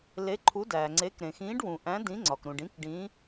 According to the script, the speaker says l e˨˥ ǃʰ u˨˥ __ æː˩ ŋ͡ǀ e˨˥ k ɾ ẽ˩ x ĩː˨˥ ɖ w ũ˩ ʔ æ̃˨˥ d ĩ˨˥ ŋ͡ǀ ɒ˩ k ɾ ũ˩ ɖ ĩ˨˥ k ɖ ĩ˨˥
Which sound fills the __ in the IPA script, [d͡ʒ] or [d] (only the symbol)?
d